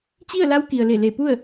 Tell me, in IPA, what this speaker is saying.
t͡ɕ i˥˨ ə̯ l a˧˥ w k i˩ ə̯ l e˧˩ l e˧˩ p u˥˨ ə̯

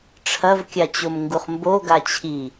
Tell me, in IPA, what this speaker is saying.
ʈ͡ʂʰ ɐ v kʲ a t͡ɕ o m ŋ ɡ u χ m b o ɡ a t͡ɕʰ i

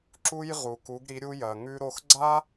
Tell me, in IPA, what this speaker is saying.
ǁ u˧ j ʁ u˩ k u˩˧ ɡ ɾ i˩˧ ɾʲ u˧ j ɐ˩ ŋ ʉ˧ ɾ o˧ x ɡ͡ǀ a˥

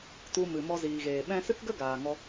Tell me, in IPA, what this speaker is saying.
t u˧ m ɨ˨ m ɔ˧ z iː˨ ɣ eː˨ ɓ ɛ̃˦ s ɨ˦ k ɡ ə˦ ɡ aː˨ ŋ ɔ˧

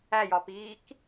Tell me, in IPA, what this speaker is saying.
æ j ɒ p iː k

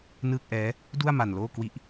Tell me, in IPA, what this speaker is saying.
n ɯː˥˩ k̚ ʔ ɛː˦˥ | d u˥˩ a̯ m a˧ n l oː˥˩ k w i˦˥ ʔ

